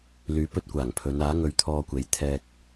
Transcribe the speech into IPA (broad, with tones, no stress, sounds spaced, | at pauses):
l yː˨˧ p ɵ˧ t̚ kʷ aː˨˩ ŋ pʰ ɵ˨˧ n aː˨˥ ŋ ɵ˨˧ ɥ t̪ʰ ɔː˧ kʷ e˨˥ j t̪ʰ ɛː˧ k̚